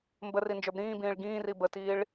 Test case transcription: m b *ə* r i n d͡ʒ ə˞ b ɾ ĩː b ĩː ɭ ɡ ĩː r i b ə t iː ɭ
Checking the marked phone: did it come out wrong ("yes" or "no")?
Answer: no